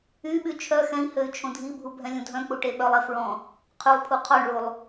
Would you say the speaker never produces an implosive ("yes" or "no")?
no